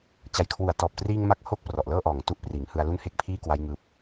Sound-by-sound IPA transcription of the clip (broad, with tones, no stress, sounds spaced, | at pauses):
t͡ɕ a˨˩ j kʰ w u˨˩ a̯ t ɔː˨˩ p̚ t r iː˧ ŋ m a˦˥ k̚ h o˦˥ k̚ p r ɔ˨˩ ʔ l ɤː˥˩ ʔ ɔː˨˩ ŋ t u˦˥ ʔ p r iː˩˦ ŋ h ɯ˧ a̯ l u˥˩ n h e˥˩ k̚ pʰ iː˥˩ k w a˦˥ j ŋ ɯː˦˥ p̚